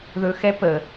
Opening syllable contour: low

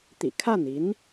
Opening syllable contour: low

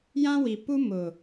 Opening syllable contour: high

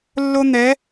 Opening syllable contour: high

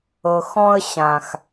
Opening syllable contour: low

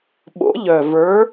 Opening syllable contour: rising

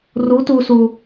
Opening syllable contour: rising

